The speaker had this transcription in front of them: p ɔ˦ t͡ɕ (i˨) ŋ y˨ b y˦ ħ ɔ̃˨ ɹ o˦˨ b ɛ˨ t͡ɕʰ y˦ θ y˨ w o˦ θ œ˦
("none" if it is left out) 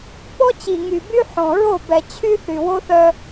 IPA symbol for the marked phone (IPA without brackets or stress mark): i˨